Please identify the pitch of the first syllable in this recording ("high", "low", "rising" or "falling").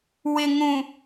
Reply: low